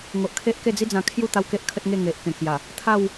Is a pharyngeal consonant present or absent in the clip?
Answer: absent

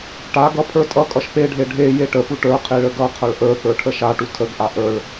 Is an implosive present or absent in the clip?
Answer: absent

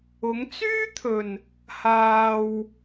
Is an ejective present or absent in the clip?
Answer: absent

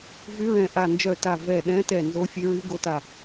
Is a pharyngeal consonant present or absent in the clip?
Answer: absent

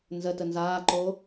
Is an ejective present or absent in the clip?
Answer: absent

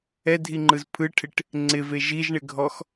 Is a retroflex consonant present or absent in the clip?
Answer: present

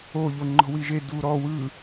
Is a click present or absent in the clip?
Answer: present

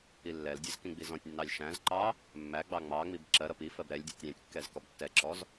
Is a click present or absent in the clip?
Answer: present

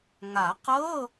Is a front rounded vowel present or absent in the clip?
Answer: absent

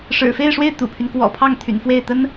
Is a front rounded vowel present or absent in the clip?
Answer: present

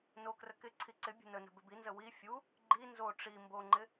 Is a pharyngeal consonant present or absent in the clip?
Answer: absent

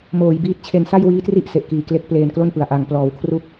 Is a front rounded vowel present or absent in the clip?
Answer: absent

